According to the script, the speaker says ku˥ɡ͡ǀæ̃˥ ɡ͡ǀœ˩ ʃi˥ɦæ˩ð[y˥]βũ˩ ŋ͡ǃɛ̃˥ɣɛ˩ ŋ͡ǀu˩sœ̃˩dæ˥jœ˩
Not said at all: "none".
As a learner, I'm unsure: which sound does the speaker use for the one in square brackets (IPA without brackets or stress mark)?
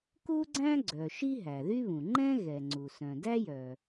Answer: y˥